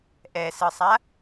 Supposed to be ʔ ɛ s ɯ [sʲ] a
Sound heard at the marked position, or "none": sˤ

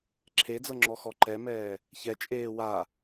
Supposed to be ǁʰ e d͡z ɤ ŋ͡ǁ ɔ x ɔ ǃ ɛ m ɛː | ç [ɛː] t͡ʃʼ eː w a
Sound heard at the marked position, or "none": ɛ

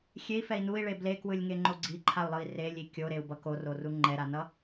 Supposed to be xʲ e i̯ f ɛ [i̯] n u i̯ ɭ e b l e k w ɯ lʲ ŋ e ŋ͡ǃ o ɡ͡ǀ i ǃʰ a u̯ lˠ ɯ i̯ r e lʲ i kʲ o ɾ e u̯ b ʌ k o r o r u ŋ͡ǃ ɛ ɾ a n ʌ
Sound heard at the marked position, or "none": i̯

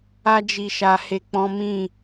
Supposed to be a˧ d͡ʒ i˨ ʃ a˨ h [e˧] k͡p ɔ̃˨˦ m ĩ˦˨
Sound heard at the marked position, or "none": e˨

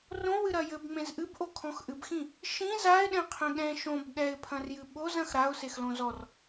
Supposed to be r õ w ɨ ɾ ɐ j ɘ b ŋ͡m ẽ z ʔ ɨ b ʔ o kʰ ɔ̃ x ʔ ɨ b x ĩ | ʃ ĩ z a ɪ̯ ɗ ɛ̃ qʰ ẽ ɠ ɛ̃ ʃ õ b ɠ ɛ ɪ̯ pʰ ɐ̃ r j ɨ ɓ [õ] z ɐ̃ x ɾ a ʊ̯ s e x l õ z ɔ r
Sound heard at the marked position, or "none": o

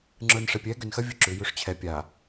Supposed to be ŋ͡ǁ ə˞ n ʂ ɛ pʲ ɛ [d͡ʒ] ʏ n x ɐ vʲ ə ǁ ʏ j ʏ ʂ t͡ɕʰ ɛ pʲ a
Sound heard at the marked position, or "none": ɡ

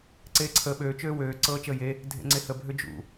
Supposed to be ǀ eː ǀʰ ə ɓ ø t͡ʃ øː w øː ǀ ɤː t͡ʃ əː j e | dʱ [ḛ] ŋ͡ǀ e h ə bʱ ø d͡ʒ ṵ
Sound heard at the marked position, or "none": ḛ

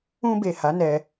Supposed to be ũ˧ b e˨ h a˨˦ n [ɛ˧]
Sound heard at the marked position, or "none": ɛ˧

